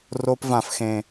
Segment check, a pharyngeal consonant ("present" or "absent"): absent